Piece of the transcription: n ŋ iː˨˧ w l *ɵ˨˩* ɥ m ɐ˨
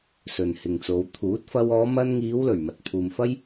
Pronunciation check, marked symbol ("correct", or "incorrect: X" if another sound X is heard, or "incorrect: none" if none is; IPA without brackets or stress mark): correct